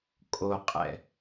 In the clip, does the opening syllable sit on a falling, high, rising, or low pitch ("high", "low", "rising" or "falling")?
low